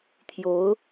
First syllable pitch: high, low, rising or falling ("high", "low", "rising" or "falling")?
rising